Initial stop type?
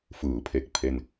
aspirated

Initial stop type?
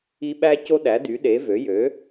implosive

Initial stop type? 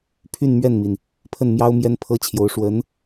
aspirated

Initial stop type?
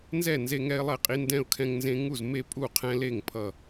ejective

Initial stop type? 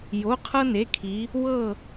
aspirated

